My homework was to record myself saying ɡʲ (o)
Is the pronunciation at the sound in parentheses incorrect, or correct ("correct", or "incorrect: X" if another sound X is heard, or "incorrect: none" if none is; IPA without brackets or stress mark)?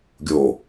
correct